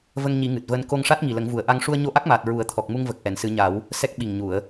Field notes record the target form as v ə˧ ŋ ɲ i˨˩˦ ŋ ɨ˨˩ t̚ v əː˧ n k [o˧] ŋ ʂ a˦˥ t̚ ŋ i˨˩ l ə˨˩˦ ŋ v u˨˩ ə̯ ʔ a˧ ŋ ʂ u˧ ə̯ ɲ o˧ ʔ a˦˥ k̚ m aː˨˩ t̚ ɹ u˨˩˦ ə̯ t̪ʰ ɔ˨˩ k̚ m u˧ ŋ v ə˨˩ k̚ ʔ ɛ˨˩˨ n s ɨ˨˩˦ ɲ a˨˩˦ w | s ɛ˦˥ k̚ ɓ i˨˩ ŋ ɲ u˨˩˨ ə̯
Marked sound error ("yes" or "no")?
no